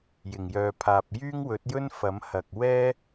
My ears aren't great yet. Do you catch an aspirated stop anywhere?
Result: yes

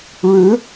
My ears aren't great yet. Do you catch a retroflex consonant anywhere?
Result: yes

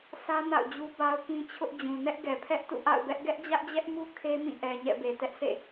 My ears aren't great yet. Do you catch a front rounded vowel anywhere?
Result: no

